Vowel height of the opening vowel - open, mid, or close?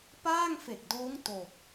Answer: open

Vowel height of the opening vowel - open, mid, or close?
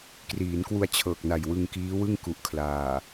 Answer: close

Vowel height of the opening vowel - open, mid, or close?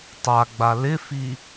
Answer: open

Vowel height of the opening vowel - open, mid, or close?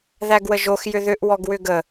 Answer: open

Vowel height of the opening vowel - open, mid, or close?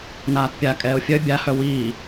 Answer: open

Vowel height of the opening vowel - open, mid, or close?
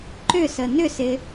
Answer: close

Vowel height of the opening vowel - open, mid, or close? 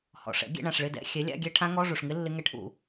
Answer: mid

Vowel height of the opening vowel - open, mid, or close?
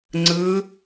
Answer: close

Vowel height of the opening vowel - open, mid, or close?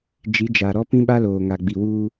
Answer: close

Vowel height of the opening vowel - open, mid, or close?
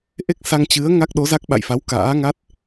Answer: mid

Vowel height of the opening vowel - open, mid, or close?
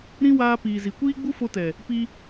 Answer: close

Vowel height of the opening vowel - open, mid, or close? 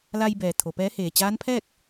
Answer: open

